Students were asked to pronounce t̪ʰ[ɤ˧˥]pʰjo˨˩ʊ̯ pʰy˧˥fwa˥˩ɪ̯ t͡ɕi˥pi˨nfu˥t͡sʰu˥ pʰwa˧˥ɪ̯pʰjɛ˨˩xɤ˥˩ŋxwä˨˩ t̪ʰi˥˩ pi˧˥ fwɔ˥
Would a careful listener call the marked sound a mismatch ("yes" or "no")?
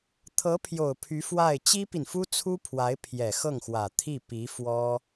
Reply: no